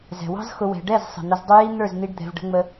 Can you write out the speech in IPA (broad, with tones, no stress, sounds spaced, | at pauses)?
z ɛ̤˨ w ɑ̤˦ z x ʊ˧ w ɛ̤˧ ɖ ɛ˦˨ z sˤ ə̤˨ n̪ ə˧ z dˤ ʊ˦ j i˦ n̪ ə˞˦˨ z n̪ i˧ ɖ d̪ ɛ̤˧ v ɖ ə̤˦ ŋ͡m ə˦